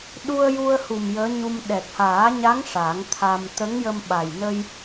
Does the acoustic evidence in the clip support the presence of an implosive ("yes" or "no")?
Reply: yes